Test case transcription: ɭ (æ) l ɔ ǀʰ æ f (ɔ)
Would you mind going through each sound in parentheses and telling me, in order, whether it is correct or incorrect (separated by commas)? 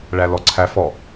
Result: correct, correct